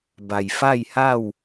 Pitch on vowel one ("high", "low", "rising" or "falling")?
low